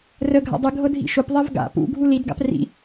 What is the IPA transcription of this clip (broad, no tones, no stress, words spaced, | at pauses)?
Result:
rə ɡʱa̰dˤɨ ɡʱɤdʱḭʃʊp ðˤevɡa̰ pṵ ɡʱulid ɡa̰prḭ